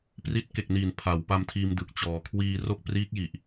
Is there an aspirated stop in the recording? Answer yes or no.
yes